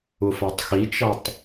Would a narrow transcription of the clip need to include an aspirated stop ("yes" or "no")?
no